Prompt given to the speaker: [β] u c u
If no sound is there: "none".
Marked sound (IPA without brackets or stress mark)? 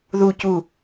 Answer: ð